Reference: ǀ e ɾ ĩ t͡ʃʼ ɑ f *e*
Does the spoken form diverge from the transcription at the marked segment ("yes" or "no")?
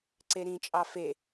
no